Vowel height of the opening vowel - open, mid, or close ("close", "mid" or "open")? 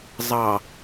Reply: open